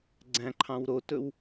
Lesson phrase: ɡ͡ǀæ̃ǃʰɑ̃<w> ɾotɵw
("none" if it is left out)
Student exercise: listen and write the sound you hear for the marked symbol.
w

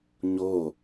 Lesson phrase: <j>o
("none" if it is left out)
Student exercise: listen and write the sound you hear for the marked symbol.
ɲ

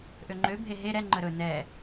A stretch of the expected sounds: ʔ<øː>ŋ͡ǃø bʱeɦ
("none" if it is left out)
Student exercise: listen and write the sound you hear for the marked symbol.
ø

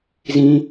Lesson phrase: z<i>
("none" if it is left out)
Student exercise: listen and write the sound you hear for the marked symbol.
ĩ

